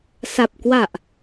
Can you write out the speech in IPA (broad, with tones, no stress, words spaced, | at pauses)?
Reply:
sa˨˩p̚ kwa˨˩ʔ